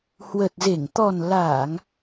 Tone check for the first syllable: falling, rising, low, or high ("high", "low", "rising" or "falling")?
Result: low